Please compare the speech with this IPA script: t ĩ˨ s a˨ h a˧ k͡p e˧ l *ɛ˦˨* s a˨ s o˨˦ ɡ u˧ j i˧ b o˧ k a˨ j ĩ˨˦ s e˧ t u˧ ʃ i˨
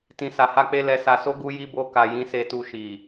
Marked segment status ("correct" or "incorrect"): incorrect